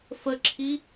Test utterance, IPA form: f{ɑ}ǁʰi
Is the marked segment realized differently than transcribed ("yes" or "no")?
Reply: yes